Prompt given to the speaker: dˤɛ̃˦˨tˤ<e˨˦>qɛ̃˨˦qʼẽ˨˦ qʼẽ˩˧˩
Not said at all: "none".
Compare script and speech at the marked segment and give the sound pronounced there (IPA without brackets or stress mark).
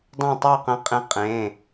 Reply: e˦˨